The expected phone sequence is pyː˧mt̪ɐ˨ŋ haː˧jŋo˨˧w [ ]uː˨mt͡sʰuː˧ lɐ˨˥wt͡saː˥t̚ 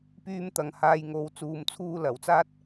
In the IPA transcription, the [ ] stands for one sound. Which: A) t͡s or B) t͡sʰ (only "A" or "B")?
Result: A